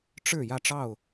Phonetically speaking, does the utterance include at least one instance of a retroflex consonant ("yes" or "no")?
yes